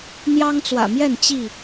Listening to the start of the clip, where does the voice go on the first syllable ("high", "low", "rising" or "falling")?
high